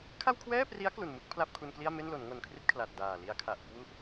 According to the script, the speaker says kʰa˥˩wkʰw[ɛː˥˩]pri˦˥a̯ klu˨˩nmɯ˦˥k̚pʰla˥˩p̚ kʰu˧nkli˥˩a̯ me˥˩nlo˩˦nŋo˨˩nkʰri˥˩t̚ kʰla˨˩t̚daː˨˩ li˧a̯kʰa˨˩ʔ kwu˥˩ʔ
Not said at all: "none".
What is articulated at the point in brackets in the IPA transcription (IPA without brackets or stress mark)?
ɛː˥˩